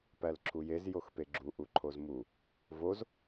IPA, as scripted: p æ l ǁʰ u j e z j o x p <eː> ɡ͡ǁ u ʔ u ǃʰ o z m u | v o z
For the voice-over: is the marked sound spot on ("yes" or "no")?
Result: no